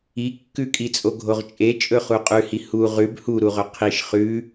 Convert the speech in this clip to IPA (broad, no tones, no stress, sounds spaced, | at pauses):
i kː ʉ kʼ i t͡sʼ o ɡʱ o ʁ t͡ʃʼ e t͡ʃʼ ɵ χ u qʼ ʉ h i h u ʁ ʉ b h u ɾ u ʁ ɵ qʰ i ʃ χ ʉ